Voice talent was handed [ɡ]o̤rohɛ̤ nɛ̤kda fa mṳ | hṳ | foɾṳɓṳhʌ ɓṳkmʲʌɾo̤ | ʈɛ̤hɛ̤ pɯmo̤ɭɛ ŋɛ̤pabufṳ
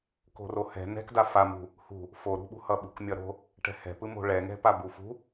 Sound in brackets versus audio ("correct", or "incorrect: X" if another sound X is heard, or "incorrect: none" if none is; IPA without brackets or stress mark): incorrect: k